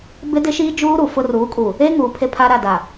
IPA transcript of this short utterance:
bɪ˦dɪ˦ ʃiː˦d͡ʒuː˦ɾu˨ fʊ˦ ruː˨˦kʼu˨ | e˦ŋuː˨ pʰe˦pʰa˦ ɾa˦˨da˨

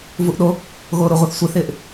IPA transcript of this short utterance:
vuʔɗo | ɣoːɾʊʁʷœθ sʷɪθɪːʔ

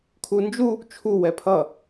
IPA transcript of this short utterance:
kʰund͡ʒu | t͡ʃʰu wɛpʰʌ

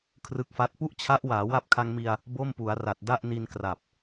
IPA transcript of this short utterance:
kʰrɯ˦˥k̚fa˦˥t̚ pu˥˩ʔt͡ɕʰa˦˥ʔ waː˩˦wa˦˥p̚kʰa˧ŋmi˧a̯ | bo˥˩mpu˩˦a̯ra˨˩t̚ da˥˩ʔni˧n kra˨˩p̚

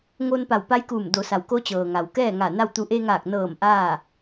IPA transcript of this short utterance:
ŋoː˧npa˧˩wpa˧˥jkuː˧˩m do˩˧sa˩wko˧˥ t͡ɕɤː˩ŋa˩wkɛː˥˨ŋa˧˩ na˥˨wt̪u˧˥ ʔe˧ŋaː˧˩k̚nɤː˧˩m ʔaː˥˨

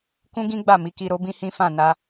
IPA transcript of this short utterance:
kũ˦ɡĩ˦ɡ͡ba˦˨ mi˨˦ki˧ɾo˦bĩ˦ hĩ˦ fã˦˨na˧

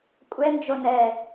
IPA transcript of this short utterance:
kʷʼɛnd͡ʒo nɛ

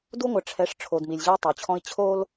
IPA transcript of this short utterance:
du˦ŋʷɐ˨ʈ͡ʂʰɛ˨˦ʂ ʈ͡ʂʰo˨dmi˨lʲʑɘ˦u̯ tˤo˨t͡ɕʰɔ̃˦i̯ t͡ɕʰo˦l

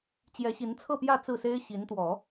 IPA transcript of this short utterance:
t͡ɕjɛ˧˥ɕi˧˥nt͡sʰɤ˥˧pjä˥˧ t͡sɹ̩˥˩se˥ɪ̯ ɕi˧˥nt̪wɔ˨˩˦

